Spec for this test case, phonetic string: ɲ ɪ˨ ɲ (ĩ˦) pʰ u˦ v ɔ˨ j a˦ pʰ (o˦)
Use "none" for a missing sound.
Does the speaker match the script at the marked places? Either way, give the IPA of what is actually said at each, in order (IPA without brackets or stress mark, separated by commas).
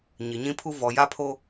ĩ˦, o˦